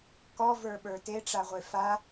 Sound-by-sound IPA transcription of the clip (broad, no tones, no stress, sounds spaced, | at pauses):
k ɔ v ə˞ ɓ ə˞ t e ʈ͡ʂ a ʁʷ e f a